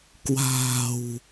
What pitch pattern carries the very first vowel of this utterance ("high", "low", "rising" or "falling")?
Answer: low